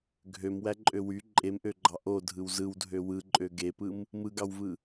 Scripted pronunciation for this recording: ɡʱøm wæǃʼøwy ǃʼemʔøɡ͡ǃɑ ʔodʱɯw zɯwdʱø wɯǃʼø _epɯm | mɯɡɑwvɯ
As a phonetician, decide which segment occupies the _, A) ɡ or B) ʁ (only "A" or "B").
A